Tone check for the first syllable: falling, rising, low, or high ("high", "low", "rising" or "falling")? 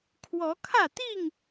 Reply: rising